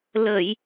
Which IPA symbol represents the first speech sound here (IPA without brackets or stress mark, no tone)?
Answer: l